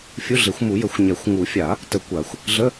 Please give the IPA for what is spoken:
fʲu˧˥˧ɮe˨˩˦xʷmu˨˩˦jə˨˩˦xʷ ɲɛ˨˩˦xʷ ŋu˨˩˦fʲa˨˩˦ | tə˨˩˦ kʷa˨˩˦xʷ | ɮə˧˥˧

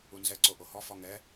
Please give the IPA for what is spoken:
unzɛ ǀoʔohɔ fɔŋɛ

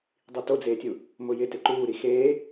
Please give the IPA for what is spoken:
dˤitod͡zeːtʲu | mʊjɪ tɪǃuːɾi xeː

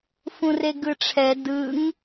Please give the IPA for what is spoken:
fũreɡɯʈ͡ʂʰɛ dɯŋ

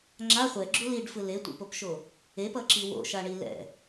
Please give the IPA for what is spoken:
ŋ͡ǁa χʷɛɡ͡ǁu liɖfɯ letʷḛpopʃo | epʌǁi wo̰ʃaɳi lɛ̰

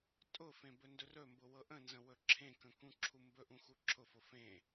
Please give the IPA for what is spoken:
tʼʊfẽ bɵndɵrɵmbʊ wɤʔə̃nzə̃ wɵǁʰẽkə̃ kũǁʰumbɵʔũ xuǁʰʊfʊ fẽ

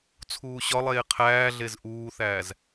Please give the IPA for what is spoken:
t͡sʰuːɕɒlˠeː qʰæːɮez ʔuːθæːz

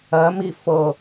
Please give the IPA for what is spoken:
ɜmi fɤ

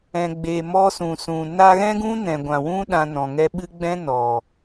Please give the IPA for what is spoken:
ɛ̃˨ɡ͡beː˨ mɔ˧sũ˨sũ˨ na˧ɣɛ̃˦ɡũ˦ nɛ̃˨ɡʷã˨wũ˦ ɗã˧nɔ̃˨ŋɛ˦ ɓɨ˧ ɡ͡bɛ̃˦nɔ˨

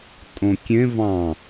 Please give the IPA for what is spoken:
tʼõkʲẽ vɑ̃

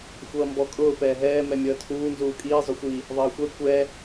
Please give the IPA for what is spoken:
xʷʌːmbɔkʼʊː pɛːɦɛː mɛmʲʌːtʰuː nzuːkʼiː zˤʊxʷi | ðˤʌːxʷɛ kʷɛ

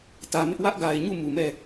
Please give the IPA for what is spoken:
tä˨mɪ˦ʔ wä˦ʔɡa˨ɪ̯ɲu˦˨ mu˨mɛ˦˨

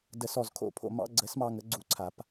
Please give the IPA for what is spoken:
də˨˩˦sɔ˨˩z kʰo̰˥˩pʰo̰˥˩ mɑ̰˧˥˧ ɡ͡ǀə˨˩˦smɑ˧ ŋə˩˥ɡ͡ǀu˧ǀʰa˨˩˦p

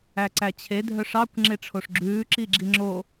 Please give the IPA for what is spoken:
æǀæt͡ɕʰe dʱœʂɑkʷ ŋ͡ǁeʈ͡ʂʰoʂɡ͡ǁʉː ǁiɡ͡ǁiŋ͡ǁo

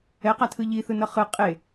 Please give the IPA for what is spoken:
ɛqatʰɯ ʎiθɯnʌ χɯ qʼe

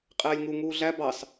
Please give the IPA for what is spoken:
qʼɛːlʲŋu ŋuːɮæ bɑs

